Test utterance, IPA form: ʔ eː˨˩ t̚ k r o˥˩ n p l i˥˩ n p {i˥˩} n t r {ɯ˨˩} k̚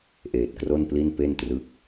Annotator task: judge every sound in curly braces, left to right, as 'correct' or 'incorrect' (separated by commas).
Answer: incorrect, incorrect